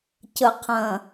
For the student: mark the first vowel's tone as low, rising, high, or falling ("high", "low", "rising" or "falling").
low